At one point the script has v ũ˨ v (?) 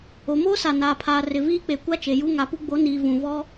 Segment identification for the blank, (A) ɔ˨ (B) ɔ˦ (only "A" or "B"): B